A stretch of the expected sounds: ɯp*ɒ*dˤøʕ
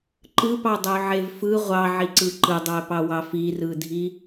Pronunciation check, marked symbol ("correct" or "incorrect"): incorrect